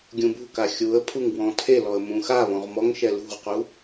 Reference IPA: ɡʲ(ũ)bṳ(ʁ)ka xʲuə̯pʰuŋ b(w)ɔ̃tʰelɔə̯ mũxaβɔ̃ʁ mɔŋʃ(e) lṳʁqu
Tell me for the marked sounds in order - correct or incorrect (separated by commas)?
correct, incorrect, correct, incorrect